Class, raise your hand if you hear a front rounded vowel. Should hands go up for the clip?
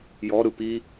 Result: no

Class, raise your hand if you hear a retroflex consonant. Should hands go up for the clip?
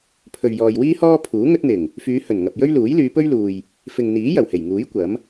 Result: no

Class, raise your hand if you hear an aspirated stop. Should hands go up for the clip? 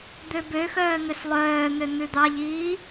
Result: no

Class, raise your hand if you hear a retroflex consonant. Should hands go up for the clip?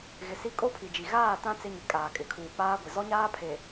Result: no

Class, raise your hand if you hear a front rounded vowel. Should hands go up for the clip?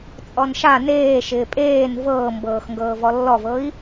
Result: no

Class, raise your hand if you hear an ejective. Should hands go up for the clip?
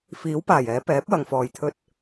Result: no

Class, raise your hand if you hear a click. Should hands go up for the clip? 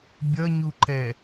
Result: yes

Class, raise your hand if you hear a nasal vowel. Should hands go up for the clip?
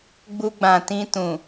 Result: yes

